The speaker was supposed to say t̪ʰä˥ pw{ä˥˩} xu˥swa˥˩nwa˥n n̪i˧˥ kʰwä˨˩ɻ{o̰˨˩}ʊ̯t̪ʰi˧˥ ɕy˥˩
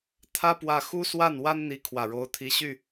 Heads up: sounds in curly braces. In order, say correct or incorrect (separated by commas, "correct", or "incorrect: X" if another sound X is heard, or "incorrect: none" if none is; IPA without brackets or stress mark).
correct, incorrect: o˧˥